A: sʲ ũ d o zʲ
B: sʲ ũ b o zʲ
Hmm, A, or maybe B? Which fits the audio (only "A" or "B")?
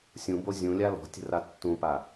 B